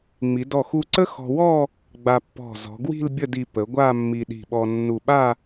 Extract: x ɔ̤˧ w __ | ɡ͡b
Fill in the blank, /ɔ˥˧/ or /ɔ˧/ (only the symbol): ɔ˥˧